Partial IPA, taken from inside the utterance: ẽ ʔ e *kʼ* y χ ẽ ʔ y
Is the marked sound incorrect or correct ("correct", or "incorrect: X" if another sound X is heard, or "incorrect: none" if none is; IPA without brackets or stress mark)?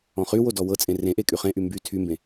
correct